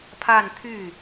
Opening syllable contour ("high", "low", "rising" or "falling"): falling